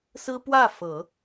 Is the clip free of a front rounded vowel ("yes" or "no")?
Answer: yes